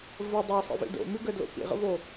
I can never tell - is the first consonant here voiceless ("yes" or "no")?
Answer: no